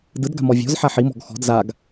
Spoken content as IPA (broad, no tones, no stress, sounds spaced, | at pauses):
d ɯ d ɡ a̤ m ɔ vʲ ɔ̤ z ħ a ħ i m ɔ̤ ɡ x ɔ̤ d z a ɡ